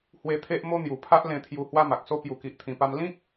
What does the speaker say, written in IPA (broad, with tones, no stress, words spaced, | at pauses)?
hwe˧t̪ʰe˦ʔmo˦ n̪ju˨˩ pʰa˦ʔlẽ˧t̪ʰju˧ hwa˦ma˨k̚so˦ pju˨˩ki˨ʔt̪ʰĩ˨˩pa˧m lĩ˦k̚